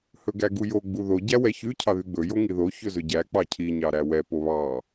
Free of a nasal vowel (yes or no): yes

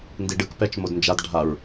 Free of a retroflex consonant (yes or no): no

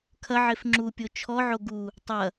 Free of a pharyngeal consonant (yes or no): no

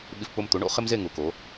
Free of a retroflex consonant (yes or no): no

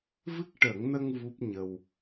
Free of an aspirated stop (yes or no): yes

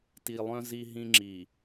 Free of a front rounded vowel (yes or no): no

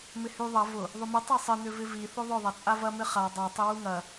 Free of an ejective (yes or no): no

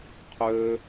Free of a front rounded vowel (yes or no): no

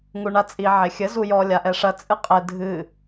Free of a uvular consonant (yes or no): no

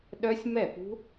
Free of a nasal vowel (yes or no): yes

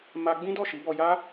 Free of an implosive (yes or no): yes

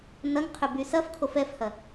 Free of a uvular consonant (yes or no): no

